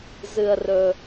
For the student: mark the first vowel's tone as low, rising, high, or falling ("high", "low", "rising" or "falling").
low